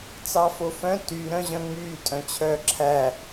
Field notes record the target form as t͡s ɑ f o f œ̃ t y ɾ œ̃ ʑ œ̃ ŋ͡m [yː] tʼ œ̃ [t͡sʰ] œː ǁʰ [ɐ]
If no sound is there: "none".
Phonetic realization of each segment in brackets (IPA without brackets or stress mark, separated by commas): yː, t͡ɕʰ, æ